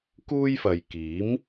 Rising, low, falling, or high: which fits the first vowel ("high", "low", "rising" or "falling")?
high